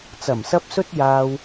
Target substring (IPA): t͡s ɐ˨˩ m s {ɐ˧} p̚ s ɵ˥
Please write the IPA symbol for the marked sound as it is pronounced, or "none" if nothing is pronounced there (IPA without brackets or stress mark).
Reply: ɐ˧